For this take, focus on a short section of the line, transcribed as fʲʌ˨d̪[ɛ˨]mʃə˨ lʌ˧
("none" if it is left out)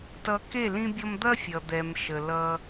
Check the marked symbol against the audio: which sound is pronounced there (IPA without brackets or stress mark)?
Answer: ɛ˨